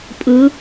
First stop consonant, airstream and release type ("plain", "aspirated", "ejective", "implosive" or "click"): ejective